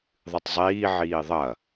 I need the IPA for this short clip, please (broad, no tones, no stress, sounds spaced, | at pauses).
ðˤ ɨ tˤ zˤ iː ʕ iː ðˤ ɐ